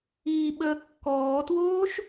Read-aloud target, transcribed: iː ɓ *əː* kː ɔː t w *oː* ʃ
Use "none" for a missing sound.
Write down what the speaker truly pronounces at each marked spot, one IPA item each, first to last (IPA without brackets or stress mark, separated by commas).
əː, oː